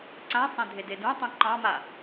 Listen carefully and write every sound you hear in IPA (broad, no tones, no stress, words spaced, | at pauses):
ǀãsˤẽdʱede dũtˤũ ǃɑ̃ma